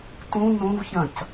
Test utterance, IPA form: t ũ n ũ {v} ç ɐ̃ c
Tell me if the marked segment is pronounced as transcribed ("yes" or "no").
yes